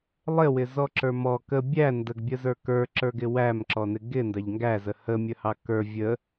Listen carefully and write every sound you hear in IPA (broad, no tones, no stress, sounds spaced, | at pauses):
lˠ ɪ w ɪ z ɔ ǁ ə˞ m ɔ k ə bʲ æ n d ə ɡ bʲ ə z ə˞ k ə˞ ǁ ə˞ ɡ ɪ w æ m ǁ ɔ n ɪ ɡ ɪ n d ɑ ʎ ŋ ɡ æ z ə h ə mʲ ə h ɑ k ə˞ vʲ ə